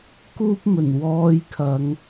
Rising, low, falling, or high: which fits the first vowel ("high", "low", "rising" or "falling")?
high